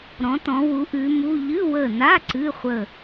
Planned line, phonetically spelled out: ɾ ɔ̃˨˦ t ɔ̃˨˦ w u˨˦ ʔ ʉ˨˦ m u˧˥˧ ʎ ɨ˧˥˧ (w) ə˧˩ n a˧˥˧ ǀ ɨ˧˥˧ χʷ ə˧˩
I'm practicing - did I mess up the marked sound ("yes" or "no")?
no